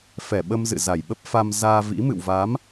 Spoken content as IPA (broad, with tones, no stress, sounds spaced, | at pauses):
f ɛ˧˩ ɓ ə˧ m z ɨ̰˧˨ z a˨˩ j ɓ ə˦˥ p̚ f a˧ m z aː˧ v ḭ˧˥ m ɨ̰˧˨ w v a˨˦ m